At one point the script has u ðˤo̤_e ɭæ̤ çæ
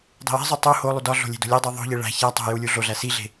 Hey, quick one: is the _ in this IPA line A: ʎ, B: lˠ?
A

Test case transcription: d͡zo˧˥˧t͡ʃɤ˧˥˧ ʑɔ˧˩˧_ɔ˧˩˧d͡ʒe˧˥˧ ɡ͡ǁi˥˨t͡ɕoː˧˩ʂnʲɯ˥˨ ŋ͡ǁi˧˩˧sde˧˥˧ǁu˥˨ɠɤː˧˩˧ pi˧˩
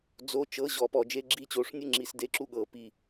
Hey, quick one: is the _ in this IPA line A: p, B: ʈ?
A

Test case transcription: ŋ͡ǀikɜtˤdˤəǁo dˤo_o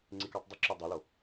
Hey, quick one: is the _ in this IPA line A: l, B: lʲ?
A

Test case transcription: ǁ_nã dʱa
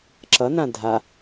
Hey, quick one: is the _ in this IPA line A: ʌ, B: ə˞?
A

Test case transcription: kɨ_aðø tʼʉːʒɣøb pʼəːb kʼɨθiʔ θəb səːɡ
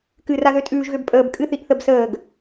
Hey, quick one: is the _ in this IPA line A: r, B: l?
A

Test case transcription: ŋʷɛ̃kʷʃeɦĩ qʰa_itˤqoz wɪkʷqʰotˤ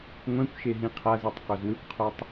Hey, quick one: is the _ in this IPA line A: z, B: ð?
A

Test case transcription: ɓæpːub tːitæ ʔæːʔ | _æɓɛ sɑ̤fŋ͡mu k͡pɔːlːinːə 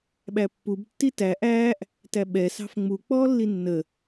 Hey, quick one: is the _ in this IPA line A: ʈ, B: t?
B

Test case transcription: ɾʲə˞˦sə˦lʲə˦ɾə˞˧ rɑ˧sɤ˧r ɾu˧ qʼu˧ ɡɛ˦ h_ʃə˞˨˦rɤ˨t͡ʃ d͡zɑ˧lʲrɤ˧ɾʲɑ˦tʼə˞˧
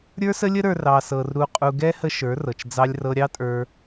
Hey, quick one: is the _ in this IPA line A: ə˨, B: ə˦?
B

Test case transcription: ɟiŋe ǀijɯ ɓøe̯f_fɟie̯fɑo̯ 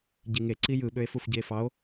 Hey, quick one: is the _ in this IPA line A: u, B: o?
A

